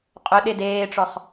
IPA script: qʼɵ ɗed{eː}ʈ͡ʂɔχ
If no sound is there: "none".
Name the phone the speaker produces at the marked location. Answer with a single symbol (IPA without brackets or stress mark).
eː